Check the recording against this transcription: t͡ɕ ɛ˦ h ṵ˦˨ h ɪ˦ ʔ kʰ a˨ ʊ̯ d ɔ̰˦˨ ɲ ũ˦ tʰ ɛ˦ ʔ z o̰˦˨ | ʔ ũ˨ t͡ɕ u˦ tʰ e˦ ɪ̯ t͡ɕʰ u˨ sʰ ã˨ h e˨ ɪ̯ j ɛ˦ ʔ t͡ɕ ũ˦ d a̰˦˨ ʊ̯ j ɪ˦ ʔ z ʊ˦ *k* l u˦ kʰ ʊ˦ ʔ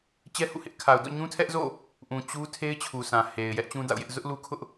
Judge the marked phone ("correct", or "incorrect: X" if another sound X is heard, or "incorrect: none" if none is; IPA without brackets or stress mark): incorrect: ʔ